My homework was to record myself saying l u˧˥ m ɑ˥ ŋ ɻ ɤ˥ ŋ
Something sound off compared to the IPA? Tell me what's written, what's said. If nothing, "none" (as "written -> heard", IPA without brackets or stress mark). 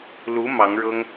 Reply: ɑ˥ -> ɑ˧˥